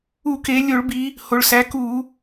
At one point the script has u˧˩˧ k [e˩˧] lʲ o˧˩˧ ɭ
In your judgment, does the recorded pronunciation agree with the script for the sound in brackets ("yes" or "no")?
yes